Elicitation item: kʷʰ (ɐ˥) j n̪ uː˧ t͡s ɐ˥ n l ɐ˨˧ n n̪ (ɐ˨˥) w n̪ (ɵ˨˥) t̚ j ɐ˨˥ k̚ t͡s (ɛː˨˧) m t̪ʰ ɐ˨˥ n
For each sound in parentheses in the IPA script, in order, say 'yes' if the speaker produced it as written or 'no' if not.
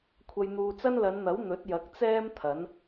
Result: no, yes, yes, no

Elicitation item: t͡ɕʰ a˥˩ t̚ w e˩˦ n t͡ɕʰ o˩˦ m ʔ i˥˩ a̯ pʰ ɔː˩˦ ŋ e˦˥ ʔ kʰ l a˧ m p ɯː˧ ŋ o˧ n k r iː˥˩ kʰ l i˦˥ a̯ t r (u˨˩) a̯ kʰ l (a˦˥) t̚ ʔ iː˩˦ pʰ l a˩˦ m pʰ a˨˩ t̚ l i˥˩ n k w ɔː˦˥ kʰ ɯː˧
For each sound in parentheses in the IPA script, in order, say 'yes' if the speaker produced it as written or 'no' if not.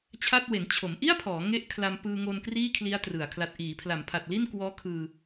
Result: no, no

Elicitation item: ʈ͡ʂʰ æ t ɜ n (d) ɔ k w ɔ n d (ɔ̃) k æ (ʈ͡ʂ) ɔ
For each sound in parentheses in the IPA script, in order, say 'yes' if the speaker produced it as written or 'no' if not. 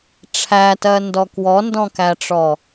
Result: yes, yes, yes

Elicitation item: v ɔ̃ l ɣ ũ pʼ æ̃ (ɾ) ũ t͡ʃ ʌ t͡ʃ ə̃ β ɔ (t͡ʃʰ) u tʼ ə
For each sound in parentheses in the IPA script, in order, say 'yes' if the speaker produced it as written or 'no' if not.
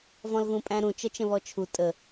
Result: yes, yes

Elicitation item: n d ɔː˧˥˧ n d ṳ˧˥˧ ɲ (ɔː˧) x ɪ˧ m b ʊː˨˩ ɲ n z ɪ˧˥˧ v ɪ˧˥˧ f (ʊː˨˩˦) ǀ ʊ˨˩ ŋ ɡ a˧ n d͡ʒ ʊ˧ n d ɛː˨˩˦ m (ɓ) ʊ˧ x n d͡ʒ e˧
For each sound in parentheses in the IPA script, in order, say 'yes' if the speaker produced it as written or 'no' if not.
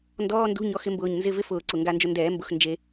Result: no, yes, no

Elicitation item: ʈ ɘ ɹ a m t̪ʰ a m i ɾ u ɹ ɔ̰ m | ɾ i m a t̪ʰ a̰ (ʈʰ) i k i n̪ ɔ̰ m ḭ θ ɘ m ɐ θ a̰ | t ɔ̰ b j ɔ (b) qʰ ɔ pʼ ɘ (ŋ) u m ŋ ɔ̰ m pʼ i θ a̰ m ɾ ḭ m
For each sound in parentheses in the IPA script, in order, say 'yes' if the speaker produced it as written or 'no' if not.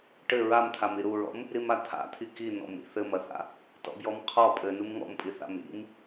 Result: no, no, no

